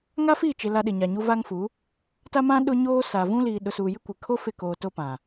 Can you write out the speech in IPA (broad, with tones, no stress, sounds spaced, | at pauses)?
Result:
ŋ a˦ f iː˦˨ t͡ʃ ɪ˨ l a˦ ɗ ɪ˨ ɲ a˨ ɲ uː˦ v aː˦ ŋ f u˨˦ | t a˦ m ã˦ ɗ ʊ˦ ɲ oː˦ s a˨ v ũ˦ l iː˨ ɗ ʊ˨ s uː˨ j ɪ˦ kʷ ɪ˨ kʰ o˦ f ɪ˦˨ k oː˨ t o˦ p ã˨